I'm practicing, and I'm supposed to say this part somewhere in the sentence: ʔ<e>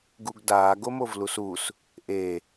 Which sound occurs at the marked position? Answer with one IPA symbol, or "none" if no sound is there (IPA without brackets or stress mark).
e